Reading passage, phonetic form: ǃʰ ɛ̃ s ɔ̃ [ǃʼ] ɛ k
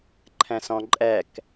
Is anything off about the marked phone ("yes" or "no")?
no